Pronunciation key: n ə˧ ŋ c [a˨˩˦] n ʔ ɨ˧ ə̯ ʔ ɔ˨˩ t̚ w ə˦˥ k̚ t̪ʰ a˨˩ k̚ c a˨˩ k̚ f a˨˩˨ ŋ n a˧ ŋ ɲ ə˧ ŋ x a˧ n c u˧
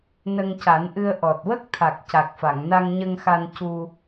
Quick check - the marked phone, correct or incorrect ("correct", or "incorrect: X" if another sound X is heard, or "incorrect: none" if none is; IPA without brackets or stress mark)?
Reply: correct